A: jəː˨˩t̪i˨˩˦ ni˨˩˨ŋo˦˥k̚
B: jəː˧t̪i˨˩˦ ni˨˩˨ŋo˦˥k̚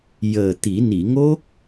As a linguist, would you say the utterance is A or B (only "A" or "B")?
A